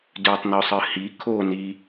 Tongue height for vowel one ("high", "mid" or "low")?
high